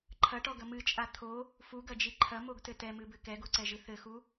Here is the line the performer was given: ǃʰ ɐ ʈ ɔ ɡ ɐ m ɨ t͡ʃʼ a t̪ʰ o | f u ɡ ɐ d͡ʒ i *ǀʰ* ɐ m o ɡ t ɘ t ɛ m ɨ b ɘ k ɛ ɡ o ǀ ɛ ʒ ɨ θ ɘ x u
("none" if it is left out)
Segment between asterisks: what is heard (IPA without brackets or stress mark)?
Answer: ǃʰ